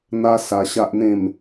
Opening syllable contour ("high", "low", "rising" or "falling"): high